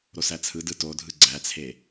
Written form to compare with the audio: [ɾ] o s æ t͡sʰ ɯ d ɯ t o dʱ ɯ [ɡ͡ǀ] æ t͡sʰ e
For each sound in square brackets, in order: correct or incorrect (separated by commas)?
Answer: correct, correct